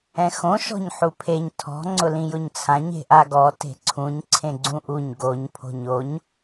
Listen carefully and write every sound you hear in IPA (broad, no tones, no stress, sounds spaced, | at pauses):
ɛ̃ x õ ʃ ɔ̤ ɲ ħ u pʰ e ɲ tʰ ɔ̤ ŋ͡ǀ ʊ l ĩ j ʊ ɲ t͡sʰ ã ɲ e̤ ʔ a ɡ ɔ t e̤ ǀʰ ũ ɲ ǀʰ ẽ ɡ͡ǀ ũ ʔ u ɲ ɡ o ɲ pʰ o̤ ɲ o ɲ